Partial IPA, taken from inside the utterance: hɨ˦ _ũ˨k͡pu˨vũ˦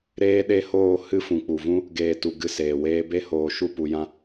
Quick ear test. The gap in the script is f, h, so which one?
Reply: f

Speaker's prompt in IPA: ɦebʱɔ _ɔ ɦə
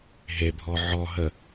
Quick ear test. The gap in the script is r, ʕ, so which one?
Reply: ʕ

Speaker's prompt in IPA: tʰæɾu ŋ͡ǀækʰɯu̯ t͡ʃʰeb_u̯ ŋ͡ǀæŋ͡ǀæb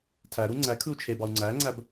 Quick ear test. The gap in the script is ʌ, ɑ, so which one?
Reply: ɑ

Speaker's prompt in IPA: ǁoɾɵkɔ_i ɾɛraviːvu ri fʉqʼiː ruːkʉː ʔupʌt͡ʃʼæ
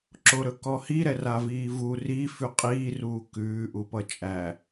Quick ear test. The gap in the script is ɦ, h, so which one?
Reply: h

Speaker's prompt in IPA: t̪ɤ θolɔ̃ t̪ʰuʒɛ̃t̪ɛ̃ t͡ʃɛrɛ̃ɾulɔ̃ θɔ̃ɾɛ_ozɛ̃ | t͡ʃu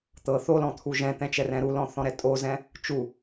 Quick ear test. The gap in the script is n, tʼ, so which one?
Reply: tʼ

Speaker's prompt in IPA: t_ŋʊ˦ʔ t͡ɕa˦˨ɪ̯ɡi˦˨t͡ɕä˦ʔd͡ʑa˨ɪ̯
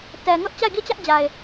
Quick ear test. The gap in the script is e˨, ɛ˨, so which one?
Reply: ɛ˨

